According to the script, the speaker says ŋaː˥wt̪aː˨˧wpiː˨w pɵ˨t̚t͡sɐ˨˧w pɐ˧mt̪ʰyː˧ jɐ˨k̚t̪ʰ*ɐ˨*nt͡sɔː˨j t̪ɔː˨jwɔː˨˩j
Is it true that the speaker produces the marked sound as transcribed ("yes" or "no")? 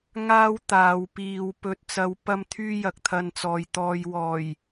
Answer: no